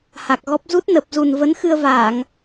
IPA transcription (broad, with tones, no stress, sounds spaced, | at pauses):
h a˨˩ k̚ ɣ ɔ˦˥ p̚ z u˦˥ t̚ n ə˨˩ p̚ z u˨˩ n v ə˨˦ n x ɨ˧ ə̯ v aː˧˩˨ ŋ